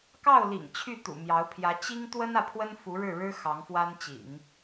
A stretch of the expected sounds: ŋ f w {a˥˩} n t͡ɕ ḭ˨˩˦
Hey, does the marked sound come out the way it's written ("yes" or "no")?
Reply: no